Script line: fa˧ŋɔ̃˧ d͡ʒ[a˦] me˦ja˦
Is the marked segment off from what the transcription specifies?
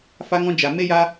yes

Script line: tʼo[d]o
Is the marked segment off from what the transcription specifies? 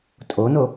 yes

